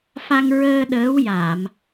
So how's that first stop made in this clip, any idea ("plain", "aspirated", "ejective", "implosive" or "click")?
implosive